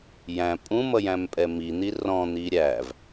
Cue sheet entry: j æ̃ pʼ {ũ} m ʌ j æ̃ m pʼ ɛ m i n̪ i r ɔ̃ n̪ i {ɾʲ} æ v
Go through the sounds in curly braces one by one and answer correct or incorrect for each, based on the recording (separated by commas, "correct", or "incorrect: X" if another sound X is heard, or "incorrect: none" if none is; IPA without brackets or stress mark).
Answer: correct, correct